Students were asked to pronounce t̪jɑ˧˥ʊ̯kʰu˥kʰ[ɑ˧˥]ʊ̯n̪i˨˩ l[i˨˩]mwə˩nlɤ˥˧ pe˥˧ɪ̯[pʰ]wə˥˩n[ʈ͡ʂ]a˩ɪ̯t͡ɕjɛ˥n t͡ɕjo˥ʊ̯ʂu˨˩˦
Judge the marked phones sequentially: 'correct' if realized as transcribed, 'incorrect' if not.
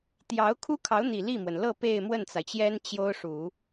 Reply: correct, incorrect: i˥˩, incorrect: m, incorrect: t͡s

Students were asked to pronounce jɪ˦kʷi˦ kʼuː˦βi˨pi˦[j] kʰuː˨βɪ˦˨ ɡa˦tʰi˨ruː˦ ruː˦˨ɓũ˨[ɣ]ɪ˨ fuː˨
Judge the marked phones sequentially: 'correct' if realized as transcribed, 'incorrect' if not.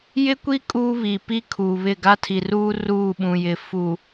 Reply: incorrect: none, incorrect: j

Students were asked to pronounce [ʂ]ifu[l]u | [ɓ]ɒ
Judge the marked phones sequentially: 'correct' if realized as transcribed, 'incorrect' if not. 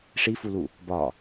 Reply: correct, correct, incorrect: b

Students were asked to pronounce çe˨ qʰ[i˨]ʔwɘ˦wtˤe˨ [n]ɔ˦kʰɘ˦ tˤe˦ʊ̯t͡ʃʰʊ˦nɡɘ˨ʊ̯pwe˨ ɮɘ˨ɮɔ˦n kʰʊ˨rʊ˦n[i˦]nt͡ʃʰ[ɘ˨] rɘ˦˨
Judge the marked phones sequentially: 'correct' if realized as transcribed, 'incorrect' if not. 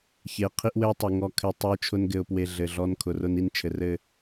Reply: incorrect: i˦, incorrect: ŋ, correct, correct

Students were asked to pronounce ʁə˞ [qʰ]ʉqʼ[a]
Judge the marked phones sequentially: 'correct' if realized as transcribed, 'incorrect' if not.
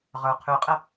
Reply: correct, incorrect: ə

